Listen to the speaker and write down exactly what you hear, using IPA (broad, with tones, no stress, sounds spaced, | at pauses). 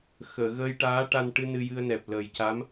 x əː˨˩˨ ɣ əː˧ j ʈ aː˧˥ ʈ a˧ n ʈ ɨ˧ n ɨ˧ j ɨ˧ ə̯ n ɛ˨˩ p̚ l əː˨˩ j c a˧˥ m